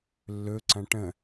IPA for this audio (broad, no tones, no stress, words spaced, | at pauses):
lːɵ ǀɐ̃ʈə̃